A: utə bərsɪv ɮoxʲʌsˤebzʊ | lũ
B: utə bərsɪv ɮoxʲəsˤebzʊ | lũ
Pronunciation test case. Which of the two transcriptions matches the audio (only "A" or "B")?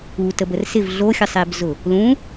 A